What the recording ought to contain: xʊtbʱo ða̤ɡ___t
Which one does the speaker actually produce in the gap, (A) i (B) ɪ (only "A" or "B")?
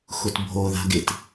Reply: B